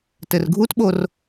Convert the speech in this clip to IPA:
t ɘ r ɡʱ u t ɓ o r

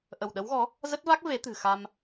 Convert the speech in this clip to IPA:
ʔ ə˧˩ w ɗ ə˨˦ w ɣ ɔ˨˦ | z ə˦˥ t̚ v a˦˥ k̚ v e˨˦ t̪ ɨ̤˨˩ x a˧ m

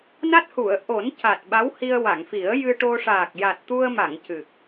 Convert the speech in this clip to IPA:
n a˦˥ t̚ h u˨˩˨ ə̯ ʔ o˨˩˦ n c a˨˩ t̚ ɓ a˧˥ w h i˧ ə̯ w a˨˩˨ ŋ f i˨˩˦ ə̯ j ɨ˧ ʈ o˧ ʂ aː˨˩ k̚ j a˨˩ t̚ t̪ u˧ ə̯ m a˨˩˨ ŋ c ɨ˨˩ k̚

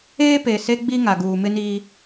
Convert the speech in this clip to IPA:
eː˦ p e˨ s e˦ ɡ͡b i˦ ŋ a˨ ɡ uː˨ m ɪ˦ n i˦

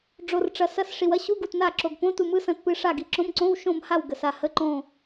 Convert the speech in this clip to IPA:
ɖ͡ʐ o˨ r ʈ͡ʂ ɐ˨ s ɐ˧˥˧ s ʂ i˨ w ɐ˧˥˧ ɕ u˧˥˧ ɡ u˨ t n a˦˨ ǁ o˨ ɡ p õ˧˥˧ t u˦˨ m ɯ˧˥˧ s ɐ̃˦˨ t p ɨ˦˨ ʂ a˦˨ ɡ i˨ ǁ õ˧˥˧ m ǀ õ˧˥˧ w ʃ õ˦˨ m h a˦˨ w ɡ ə˨ s a˦˨ h ə˧˥˧ ǃ õ˦˨

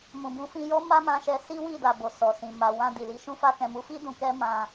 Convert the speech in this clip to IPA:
m ũ˨ b ũ˨˦ f ĩ˧ j ɔ˦ m a˦ m ã˧ ʃ ɛ˧ s i˦ w i˦˨ d a˨ b o˨ s ɔ˨ s ĩ˨ m a˨ w ã˧ d i˨ l i˨˦ ʃ ũ˧ f a˧ k ɛ̃˨ m u˨˦ f i˦ d ũ˧ k ɛ˦ m ã˧

